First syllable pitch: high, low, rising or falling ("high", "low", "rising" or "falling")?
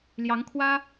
rising